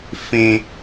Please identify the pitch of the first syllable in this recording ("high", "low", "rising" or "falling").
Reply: low